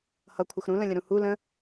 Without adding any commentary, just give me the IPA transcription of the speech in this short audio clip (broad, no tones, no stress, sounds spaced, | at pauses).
h ʌ kʷʰ ə x ɾ ũ l ə̃ lʲ ə̃ ɾ ũ h u l ə̃